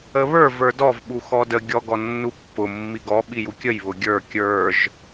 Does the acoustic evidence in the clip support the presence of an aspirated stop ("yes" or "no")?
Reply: no